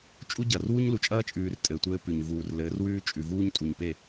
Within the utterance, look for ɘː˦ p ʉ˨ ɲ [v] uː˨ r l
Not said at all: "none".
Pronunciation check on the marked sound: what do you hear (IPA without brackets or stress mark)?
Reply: v